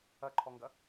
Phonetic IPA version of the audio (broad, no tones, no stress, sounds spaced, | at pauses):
ɐ ǃʰ ɔ ŋ ɡ ɐ